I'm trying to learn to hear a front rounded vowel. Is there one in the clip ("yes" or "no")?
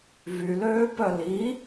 yes